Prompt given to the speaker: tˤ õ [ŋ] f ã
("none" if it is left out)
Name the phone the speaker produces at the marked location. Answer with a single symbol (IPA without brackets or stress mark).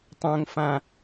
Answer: ŋ